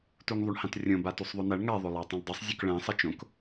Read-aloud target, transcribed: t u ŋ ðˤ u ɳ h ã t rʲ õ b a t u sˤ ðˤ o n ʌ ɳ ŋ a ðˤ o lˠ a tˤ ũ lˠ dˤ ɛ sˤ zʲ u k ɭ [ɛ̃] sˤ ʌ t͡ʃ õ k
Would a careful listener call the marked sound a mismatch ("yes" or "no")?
no